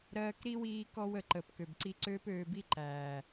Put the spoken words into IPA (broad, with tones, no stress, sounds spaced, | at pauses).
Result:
ɾ ɜː˧ k ɾ i˦ w iː˦ k ɔ˦ w ə˨ ǃ ə˨ p k ø˨ b ǀ i˧ ǀ øː˧ p øː˨ b i˧ ǃ æː˨